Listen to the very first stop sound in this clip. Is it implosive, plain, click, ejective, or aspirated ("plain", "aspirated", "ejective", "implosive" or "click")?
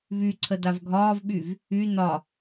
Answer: click